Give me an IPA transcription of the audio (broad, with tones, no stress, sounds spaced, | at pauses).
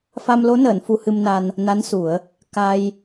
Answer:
f a˧ m l o˧˥ n əː˨˩˨ n f u˧ h ɨ˧ m n a˧ n | n a˧˥ n s u˨˩˦ ə̯ | k a˧ j